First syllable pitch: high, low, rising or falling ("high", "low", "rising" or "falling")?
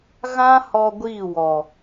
high